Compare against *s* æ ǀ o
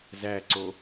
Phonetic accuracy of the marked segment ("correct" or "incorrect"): incorrect